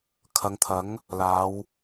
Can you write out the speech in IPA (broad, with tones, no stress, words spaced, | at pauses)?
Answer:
kʰɐ˨˧ŋt̪ʰɐ˨˥ŋ | laː˨˧w